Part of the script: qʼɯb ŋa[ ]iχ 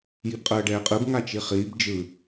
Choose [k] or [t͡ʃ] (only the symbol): t͡ʃ